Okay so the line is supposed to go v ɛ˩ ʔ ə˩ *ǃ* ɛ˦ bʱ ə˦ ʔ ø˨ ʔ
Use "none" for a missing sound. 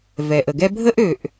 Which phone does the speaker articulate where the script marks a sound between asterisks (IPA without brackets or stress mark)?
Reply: ɡ